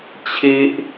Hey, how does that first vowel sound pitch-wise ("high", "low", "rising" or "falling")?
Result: high